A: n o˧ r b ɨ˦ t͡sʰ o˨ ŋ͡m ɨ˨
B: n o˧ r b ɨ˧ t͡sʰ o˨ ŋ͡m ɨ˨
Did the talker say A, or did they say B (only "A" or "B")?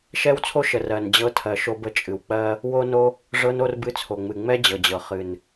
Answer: B